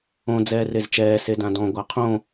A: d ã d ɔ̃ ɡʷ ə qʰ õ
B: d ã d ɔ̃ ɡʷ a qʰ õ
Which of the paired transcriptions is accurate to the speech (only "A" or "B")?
B